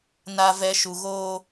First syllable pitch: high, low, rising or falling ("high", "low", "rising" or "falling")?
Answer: low